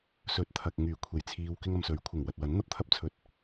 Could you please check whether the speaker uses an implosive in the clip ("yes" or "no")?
no